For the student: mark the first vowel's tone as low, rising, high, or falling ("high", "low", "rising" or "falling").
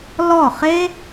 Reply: falling